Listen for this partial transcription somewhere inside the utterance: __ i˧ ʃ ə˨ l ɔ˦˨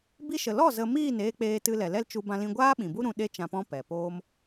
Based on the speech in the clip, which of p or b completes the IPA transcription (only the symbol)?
b